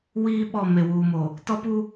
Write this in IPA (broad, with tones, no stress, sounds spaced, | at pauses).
w iː˦ ɓ ɔ˦˨ m e˨ w uː˨ m o˨ | t ɔ˦ p u˦